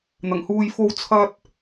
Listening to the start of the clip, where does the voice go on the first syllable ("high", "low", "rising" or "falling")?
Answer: low